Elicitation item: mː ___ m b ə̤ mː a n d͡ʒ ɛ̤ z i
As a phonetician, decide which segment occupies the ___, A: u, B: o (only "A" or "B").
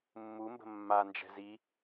A